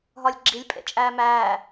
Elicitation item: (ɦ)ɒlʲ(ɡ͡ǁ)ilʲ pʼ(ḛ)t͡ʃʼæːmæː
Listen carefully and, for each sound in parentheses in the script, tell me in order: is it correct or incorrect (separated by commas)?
correct, correct, correct